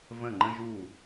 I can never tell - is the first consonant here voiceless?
no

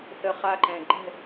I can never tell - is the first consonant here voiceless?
yes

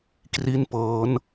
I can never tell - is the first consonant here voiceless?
yes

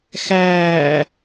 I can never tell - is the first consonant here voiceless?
yes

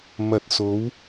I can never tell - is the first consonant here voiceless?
no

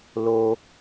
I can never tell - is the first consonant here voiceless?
no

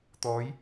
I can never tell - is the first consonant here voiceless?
yes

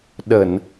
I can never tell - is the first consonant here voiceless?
no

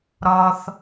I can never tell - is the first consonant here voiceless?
no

